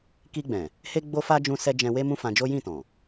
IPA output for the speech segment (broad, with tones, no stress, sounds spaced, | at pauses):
k i˧ ɡ͡b ɛ̃˨ | h e˦ ɡ͡b o˦ f a˦ d͡ʒ ũ˧ s ɛ˧ d͡ʒ ɛ̃˧ w e˦ m ũ˦ f ã˧ d͡ʒ o˦ j ĩ˦˨ t ɔ̃˨